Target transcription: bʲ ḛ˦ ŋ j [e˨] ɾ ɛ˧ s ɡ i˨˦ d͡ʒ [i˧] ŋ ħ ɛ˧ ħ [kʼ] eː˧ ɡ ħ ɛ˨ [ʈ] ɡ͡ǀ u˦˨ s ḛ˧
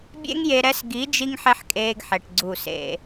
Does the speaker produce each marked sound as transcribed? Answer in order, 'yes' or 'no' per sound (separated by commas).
no, yes, yes, yes